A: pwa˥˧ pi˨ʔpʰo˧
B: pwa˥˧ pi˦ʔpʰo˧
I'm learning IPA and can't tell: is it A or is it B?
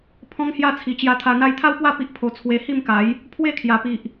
B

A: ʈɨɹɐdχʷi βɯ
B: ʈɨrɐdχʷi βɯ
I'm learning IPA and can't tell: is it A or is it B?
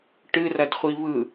B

